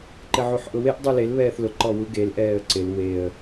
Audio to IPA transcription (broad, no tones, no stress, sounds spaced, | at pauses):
ǃ ɪ ʕ u ħ ʔ ʊ w e ʔ dˤ u l e l β ɛː θ l ʊ ǃ ɔ w u ɡ e l ʔ ɛː ə̯ ǀ ɪ l w e ə̯